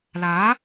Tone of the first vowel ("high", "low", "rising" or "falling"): rising